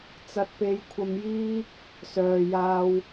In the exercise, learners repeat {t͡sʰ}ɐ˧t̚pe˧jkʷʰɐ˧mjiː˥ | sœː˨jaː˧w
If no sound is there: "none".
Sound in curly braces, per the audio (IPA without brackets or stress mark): t͡s